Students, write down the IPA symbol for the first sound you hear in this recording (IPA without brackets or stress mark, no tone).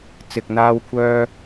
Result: t͡s